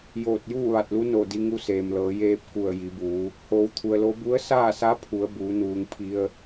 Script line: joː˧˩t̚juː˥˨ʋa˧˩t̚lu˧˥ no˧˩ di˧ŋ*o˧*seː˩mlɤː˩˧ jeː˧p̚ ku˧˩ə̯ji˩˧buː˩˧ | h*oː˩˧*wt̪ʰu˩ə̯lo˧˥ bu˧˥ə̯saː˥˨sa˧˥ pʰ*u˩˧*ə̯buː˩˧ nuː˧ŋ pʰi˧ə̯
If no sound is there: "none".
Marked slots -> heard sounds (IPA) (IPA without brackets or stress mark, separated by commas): u˧, oː˩˧, u˩˧